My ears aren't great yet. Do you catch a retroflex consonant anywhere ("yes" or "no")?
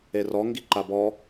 no